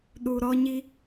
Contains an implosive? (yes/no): yes